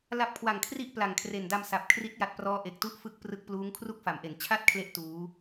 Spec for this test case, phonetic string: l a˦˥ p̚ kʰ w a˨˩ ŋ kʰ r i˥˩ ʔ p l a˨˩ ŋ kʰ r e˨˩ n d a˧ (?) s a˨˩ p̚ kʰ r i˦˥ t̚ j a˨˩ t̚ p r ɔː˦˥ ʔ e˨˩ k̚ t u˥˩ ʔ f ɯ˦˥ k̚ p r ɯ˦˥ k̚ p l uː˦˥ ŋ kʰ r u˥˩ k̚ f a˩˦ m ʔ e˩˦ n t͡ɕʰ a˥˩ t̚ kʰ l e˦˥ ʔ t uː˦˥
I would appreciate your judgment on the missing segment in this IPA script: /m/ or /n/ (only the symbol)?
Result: m